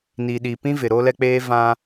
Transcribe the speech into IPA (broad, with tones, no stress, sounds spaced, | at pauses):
n i˨ ɗ i˨ p ĩ˦ v ɪ˨ ɾ o˦ l ɛ˦ k͡p eː˦ v ã˦